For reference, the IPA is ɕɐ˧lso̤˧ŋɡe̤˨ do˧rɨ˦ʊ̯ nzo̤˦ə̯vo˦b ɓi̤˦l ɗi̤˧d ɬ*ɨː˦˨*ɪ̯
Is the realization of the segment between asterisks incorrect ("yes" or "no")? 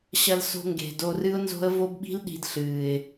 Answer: yes